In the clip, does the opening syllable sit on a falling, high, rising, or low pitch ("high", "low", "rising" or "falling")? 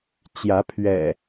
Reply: rising